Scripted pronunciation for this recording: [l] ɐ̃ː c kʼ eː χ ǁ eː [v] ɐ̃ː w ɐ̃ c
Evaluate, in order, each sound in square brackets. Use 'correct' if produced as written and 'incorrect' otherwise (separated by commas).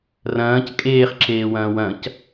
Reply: incorrect, incorrect